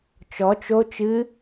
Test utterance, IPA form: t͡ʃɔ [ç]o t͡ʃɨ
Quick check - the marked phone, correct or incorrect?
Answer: incorrect